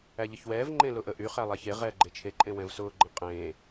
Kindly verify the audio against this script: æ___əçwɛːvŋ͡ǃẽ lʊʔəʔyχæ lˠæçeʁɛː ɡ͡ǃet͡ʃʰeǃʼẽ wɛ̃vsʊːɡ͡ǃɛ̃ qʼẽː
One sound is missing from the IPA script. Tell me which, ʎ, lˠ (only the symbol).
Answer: ʎ